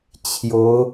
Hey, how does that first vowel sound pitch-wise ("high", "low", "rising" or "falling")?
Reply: rising